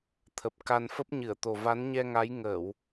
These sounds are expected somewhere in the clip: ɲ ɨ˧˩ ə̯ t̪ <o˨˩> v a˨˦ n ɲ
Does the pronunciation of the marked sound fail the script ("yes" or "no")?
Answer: no